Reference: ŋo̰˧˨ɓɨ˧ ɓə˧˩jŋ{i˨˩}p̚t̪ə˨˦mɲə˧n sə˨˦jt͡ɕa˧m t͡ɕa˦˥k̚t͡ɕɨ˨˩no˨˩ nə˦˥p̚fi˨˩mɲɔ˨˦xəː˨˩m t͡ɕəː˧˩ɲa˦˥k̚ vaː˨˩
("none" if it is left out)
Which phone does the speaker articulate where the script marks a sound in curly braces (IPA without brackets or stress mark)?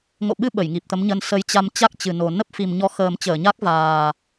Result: i˨˩